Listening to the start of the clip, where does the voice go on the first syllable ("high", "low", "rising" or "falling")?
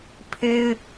high